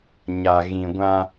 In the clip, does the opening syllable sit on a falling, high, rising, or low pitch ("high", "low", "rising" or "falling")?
low